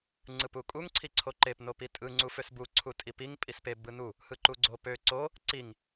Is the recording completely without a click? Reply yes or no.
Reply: no